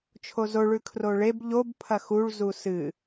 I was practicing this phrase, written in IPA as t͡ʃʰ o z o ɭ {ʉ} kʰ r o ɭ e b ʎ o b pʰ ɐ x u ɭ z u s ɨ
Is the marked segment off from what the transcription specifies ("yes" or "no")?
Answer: no